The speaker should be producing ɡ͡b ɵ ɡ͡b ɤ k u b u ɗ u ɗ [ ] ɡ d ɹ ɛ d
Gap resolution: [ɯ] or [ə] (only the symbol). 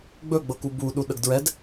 ə